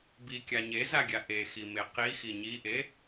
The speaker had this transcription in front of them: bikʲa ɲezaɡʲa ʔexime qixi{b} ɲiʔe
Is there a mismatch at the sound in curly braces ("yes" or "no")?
yes